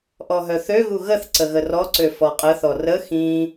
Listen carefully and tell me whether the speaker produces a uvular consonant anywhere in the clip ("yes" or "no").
yes